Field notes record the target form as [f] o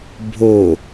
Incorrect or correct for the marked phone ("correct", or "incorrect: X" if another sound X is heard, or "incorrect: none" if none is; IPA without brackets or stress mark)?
incorrect: bʱ